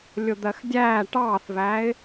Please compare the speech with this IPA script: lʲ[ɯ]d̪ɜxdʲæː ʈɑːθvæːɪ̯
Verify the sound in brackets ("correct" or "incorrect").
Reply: incorrect